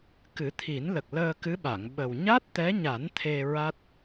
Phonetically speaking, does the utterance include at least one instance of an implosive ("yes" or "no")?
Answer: yes